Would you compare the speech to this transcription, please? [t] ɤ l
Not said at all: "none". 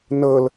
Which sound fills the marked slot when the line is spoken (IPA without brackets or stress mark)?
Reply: n